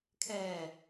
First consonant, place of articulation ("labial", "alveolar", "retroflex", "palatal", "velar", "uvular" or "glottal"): velar